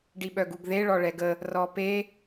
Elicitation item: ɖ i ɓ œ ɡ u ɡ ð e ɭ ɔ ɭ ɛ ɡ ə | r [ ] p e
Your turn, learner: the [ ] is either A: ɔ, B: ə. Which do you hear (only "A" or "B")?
A